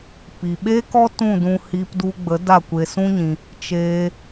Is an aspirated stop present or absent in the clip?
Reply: absent